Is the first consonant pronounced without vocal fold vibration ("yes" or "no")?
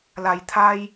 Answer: no